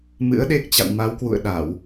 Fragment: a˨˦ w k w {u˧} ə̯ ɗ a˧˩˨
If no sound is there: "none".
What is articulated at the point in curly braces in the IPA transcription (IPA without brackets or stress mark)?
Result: ṵ˧˨